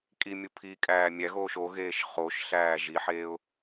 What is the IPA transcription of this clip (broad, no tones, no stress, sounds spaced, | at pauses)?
kʼ i mʲ u pʰ i kʼ æː mʲ æ ɣ oː ʃ o ɣ eː ʃ χ o ʃ ɬ æː ʒ i ħ eː ʊ̯